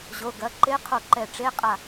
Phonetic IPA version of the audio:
ʑ o˩˧˩ ɡ ɐ˩˧˩ ǃ e˧˥ qʰ o˧˩ ǃ ɛ˧˩ ʈ͡ʂ e˧˥˧ qʼ a˧˩

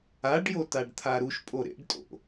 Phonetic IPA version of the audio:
a ɖ j o t a ɖ t̪ʰ a ɾ u ʃ pʼ o ɾ ḛ ɖ tʼ o̰

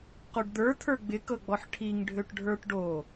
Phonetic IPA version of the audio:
q o ɖ d̪ ə˞ t̪ʰ ə˞ ɡ͡b ɪ k ɤ ɡ͡b ɔ ħ ʈʰ i ŋ ɖʱ ø ʈ ɖʱ ə˞ ʈ ɖ o

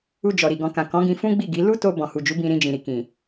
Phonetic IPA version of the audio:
u˧ d͡ʒ ɔ˨ ɾ i˨ ɡ ɔ̃˨ k ã˨ k ɔ̃˨˦ ɡ ĩ˧ f ũ˦ ɡ͡b i˦˨ ɡ i˨˦ l u˦ t o˧ b ɔ̃˨ h u˨ d͡ʒ u˨˦ b ĩ˧ ɾ ĩ˧ d͡ʒ ĩ˨ ɾ i˨ k ĩ˨

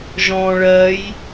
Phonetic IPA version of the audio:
ʒ ɔ̃ː ɭ ɜ j

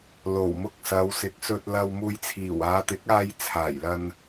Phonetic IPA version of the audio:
l o˨˩ w m ʊ˧ k̚ s ɐ˨˧ w s ɪ˨ k̚ s ɵ˧ t̚ l ɐ˧ w m uː˧ j t͡sʰ iː˨˩ w aː˨˧ t̪ ɪ˨˥ k̚ aː˧ j t͡sʰ aː˨˩ j l ɐ˧ n

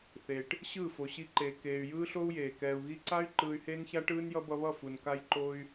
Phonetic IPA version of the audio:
θ e˨ ʈ | ɕ ɯː˦˨ f o˨ ɕ i˧ ǃ eː˨ k eː˨ y̯ j ɯː˦ ɬ o˦ u̯ j eː˨ k ɛː˨ u̯ ɣ i˧ ǀ a˦ y̯ ǃ ɯː˧ y̯ h eː˦ n ç a˦ ʈ ɯː˦ n j ʌ˦ b ʌ˧ β ʌ˦˨ f u˨ n k a˦ j ǃ o˦ y̯

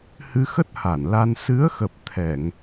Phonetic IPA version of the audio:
h ɨ˧ x ə˦˥ t̚ h a˧˩ n l a˧ n s ɨ˨˦ ə̯ x ə˨˩ p̚ t̪ʰ ɛ˧˩˨ ŋ

